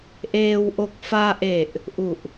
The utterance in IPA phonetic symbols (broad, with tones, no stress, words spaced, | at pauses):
ʔeː˧w ʔo˨˩k̚faː˧ʔe˨˩ʔ | ʔu˨˩ʔ